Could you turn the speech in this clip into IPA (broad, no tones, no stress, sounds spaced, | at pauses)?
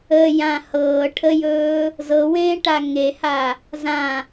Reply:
ə j ã h ɤː ʈʰ ə j ɵː | z ɤ w ẽː ʈ a ŋ e h a | z ã